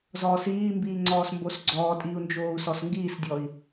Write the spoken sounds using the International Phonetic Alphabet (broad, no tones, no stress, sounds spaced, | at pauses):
z ɔː s iː m b iː ŋ͡ǀ ɔː s m b o s ɡ͡ǀ ɔː tʼ iː u̯ n d͡ʒ oː u̯ s ɔ s ŋ ɡ iː s dʲ ɔ i̯